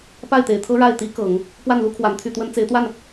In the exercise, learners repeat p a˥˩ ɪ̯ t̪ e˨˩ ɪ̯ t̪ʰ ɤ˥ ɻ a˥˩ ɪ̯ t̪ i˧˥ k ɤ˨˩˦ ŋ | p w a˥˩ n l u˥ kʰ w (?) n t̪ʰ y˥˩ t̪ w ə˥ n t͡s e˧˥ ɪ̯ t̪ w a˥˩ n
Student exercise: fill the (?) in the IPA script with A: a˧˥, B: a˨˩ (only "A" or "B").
B